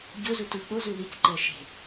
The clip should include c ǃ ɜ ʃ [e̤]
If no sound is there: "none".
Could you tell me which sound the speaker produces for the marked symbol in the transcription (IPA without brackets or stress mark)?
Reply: e̤